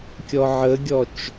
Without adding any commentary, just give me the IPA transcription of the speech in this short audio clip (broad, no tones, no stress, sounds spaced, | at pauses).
kʲ ɔ ʕ ə ɡʲ ɔ t͡ʃ